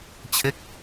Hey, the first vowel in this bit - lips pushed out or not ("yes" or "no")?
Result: no